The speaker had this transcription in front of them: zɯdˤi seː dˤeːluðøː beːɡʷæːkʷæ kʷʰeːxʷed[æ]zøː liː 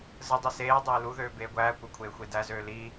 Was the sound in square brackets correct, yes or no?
yes